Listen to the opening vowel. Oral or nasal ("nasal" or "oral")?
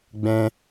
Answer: nasal